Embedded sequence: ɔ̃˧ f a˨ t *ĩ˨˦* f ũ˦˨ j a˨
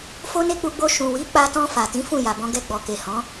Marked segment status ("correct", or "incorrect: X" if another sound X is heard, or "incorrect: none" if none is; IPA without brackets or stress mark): correct